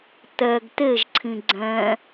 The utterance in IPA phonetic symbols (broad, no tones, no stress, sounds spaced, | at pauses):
t̪ ɛ ɡ t̪ e ʒ ǀʰ ĩ ɡ͡ǀ ɛ̃